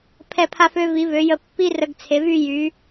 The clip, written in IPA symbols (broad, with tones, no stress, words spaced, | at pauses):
pʰɛ˧˩pʰa˧fø˧ vi˩˧vø˩˧jə˧ pːi˥rə˧ɡt͡sʰe˩˧vy˥˧ jy˩˧